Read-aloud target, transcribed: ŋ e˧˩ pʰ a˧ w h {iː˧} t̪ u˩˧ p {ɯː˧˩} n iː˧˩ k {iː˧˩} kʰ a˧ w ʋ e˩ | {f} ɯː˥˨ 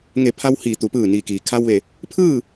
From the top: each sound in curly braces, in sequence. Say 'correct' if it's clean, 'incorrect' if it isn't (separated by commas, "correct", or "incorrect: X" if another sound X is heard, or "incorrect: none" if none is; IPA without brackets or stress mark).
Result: incorrect: iː˩, correct, incorrect: iː˩, incorrect: pʰ